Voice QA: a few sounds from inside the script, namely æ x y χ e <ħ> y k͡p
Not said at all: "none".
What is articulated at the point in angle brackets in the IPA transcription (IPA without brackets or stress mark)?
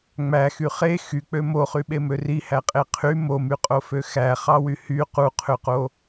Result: x